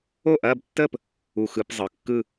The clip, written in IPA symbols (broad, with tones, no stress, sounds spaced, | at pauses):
o˥˩ ʔ ɐː˥˧ b tː əː˥˧ p | u˧˩ x ɯ˧˩˧ p zˤ ɯ˩˧˩ kː ɯ˥˧